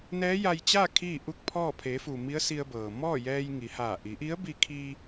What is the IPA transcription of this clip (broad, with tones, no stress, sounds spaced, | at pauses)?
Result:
n ɛː˧˥ j a˧ j t͡ɕ aː˥˨ kʰ iː˥˨ ʔ u˥˨ k̚ pʰ ɔː˥˨ pʰ e˩˧ f u˩ m i˧˥ ə̯ s i˧ ə̯ b ɤː˩ m ɔː˥˨ j ɛː˧ j ŋ i˩˧ h aː˧˩ ʔ i˩˧ ʔ i˧˥ ə̯ b i˧ kʰ iː˧